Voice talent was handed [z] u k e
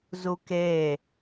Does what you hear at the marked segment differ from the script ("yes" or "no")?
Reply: no